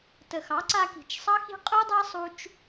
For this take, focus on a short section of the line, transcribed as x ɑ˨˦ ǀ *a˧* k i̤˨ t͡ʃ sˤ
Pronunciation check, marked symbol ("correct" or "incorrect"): correct